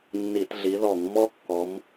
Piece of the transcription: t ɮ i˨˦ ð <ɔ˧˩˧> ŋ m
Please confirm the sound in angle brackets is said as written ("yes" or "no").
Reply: yes